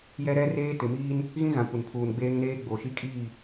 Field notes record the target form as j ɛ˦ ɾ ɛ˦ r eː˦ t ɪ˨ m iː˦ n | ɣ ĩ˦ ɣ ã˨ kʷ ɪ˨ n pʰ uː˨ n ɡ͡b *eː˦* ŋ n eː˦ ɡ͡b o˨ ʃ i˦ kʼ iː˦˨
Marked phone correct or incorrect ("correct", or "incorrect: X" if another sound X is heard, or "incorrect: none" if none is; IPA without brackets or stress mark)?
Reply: correct